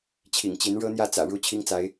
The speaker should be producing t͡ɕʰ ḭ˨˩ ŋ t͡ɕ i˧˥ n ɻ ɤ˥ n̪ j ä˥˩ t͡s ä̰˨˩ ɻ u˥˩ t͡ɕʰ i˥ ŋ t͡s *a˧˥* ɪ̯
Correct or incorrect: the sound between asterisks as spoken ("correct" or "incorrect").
correct